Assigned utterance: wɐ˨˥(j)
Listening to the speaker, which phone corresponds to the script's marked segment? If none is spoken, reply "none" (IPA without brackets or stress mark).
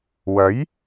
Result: j